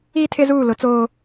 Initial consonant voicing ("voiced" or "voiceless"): voiceless